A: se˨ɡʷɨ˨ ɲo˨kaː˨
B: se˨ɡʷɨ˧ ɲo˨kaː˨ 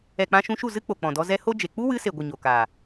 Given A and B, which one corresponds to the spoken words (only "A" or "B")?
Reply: A